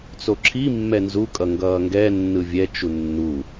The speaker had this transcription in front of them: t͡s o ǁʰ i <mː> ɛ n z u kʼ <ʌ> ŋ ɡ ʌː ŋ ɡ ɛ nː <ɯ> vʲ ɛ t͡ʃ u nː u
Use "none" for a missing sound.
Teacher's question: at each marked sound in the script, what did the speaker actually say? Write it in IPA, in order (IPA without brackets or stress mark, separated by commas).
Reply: mː, ʌ, ɯ